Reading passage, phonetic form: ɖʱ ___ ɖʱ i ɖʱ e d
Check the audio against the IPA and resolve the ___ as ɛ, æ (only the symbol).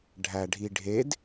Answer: æ